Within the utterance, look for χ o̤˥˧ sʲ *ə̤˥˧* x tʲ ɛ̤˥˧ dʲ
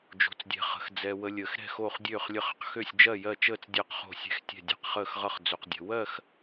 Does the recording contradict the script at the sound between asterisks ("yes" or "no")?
yes